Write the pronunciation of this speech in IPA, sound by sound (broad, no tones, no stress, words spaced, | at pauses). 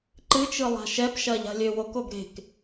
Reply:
ǃɨt͡ʃɯlˠa̤ ʃɛpʃɐʎa̤lʲø wokoɡ ɾe̤k